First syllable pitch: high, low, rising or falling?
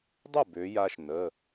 falling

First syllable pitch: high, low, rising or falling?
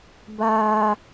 high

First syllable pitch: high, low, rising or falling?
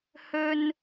high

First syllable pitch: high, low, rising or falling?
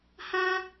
high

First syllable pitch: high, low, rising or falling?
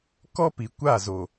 high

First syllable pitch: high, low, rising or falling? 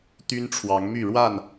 high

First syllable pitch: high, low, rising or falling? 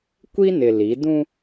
high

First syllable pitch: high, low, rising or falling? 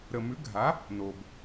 low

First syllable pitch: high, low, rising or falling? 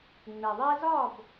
low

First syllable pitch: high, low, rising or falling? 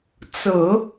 low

